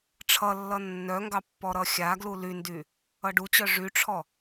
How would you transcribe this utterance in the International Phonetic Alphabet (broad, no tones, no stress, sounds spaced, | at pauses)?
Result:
ʈ͡ʂʰ ʌ lː ʌ nː œ ŋ ɡ ɑ pː ɔ ɾ ʌ xʲ a ɡ l u l y n d y | ʌ ɖ u t͡ɕ œ ʐ y ʈ͡ʂʰ ɔ